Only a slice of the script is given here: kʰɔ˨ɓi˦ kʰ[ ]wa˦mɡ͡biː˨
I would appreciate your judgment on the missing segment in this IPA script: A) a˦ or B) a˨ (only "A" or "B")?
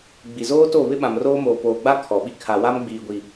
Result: B